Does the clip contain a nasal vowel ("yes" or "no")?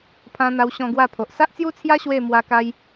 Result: yes